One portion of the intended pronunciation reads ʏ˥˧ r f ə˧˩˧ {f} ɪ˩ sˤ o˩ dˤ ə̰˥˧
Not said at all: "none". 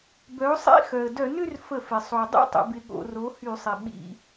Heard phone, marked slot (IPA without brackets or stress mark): f